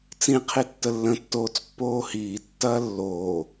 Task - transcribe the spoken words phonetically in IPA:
t͡sĩ qʰitːəlːə̃tːoːt͡s pːoːhiːtːɐː lːoː

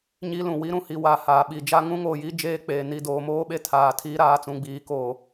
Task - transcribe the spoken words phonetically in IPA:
ɲi˦lũ˨ wi˦ɾũ˨hi˨wa˨ haː˨ɓi˨d͡ʒa˦ ŋũ˦ŋoː˨ji˦ d͡ʒeː˦k͡peː˨ni˦˨ doː˨moː˦ɓe˦ tʰaː˨tʰi˦ɾaː˨t͡sũ˨ ɡ͡biː˨ko˨

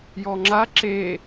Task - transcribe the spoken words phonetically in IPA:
jɔŋ͡ǁa ǁe

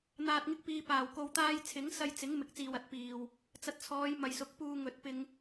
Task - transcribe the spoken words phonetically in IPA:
n̪aː˨t̚ŋɪ˧k̚piː˨paː˨˩w ko˧wt̪aː˥j t͡sʰɪ˨˥ŋsɐ˧jt͡sɪ˨˥ŋ mɪ˨k̚t͡siː˨wɐ˨˥t̚piː˨w | t͡sɐ˧t̚t͡sʰɔː˨˧jmɐ˨jsʊ˨˥k̚ puː˧ŋɵ˨˥t̚pɪ˧ŋ

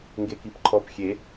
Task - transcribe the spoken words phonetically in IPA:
ŋɡekipǃʰɔp xʲe

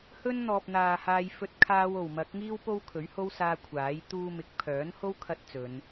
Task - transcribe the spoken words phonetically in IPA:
hɵ˥nn̪ɔː˨p̚ n̪aː˨haː˧j fɵ˥t̚ kʰaː˧wo˨˩wmɐ˨˥k̚ŋiː˥w po˥wkʰɵ˨˥ɥho˥w saː˧ kʷʰaː˨˥j t̪uː˧mɪ˨˥k̚pʰœː˨˥nho˥w kʰɐ˥t̚t͡sɵ˨˧n

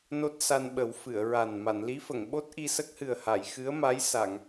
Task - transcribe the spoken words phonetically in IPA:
no˦˥t̚sa˧nɓə˨˩˦w fɨ˨˩˨ə̯ɹa˨˩n ma˨˩˨nli˧˥fə˨˩˨ŋ ɓo˦˥t̚ʔi˧sə˦˥k̚hɨ˨˩ə̯ ha˨˩˨jxɨ˧˥ə̯ma˧˥jsa˨˩˨ŋ

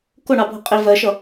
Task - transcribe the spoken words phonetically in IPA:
kʊɳɑbʱʊ qʼi vɜʃʌ

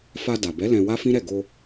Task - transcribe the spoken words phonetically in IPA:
fa˧da˨bɛ˨˦ lɛ̃˧wa˦fĩ˦ɾɛ˦˨ ɡo˧

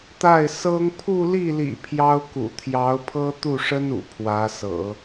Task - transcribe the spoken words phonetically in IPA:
t̪a˥˩ɪ̯ sɤ˥ŋ pʰu˥˧li˥˩lḭ˨˩ pʰjɑ˥ʊ̯kṵ˨˩ t̪ʰjɑ˧˥ʊ̯pʰɤ˥ t̪u˥˩ʂə˥nṵ˨˩ pʰwä˧˥sɤ̰˨˩˦

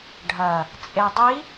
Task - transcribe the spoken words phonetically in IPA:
ɖʱɐ | t͡sʼedˤi

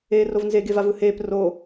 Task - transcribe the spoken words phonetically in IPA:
eːrovnze ɡevavɯheːp ro

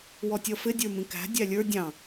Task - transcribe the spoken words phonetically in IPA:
wɔtʲʌfɪ dʲə˞mĩkæ̤ dʲælʲə˞ dʲɑ̃

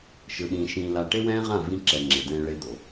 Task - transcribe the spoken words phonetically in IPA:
ʃɯ˨ɗĩː˨ ʃĩː˨la˨ ʈe˦wɛ̃ː˦ʁã˦˨ vĩ˦ǁɛ˨ ŋ͡ǁe˨dɛ̃ː˦ ɭe˦d̪o˨

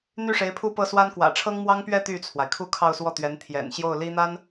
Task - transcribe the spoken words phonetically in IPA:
n̪y˥˩ʂe˧˥ɪ̯pʰu˥˧ pɤ˥˩swa˥n kwä̰˨˩ʈ͡ʂʰɤ˥ŋmwɑ˥ŋpɥɛ˥˧ t̪y˥˩t͡sʰwa˩ɪ̯kʰu˥˧ kʰɑ˥˧ʊ̯swɔ˥˩t̪ɥɛ˧˥n t̪ʰjɛ̰˨˩nɕjo˥˩ʊ̯li˥n̪a˥n

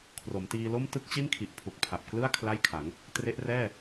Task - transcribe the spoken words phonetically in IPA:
kʰro˩˦mtiː˧lo˥˩m tɯ˥˩k̚t͡ɕi˥˩nkʰi˨˩ʔ pʰu˨˩k̚pʰa˨˩p̚klɯ˥˩a̯ kʰla˥˩jkʰa˩˦ŋ | tre˦˥ʔrɛː˥˩

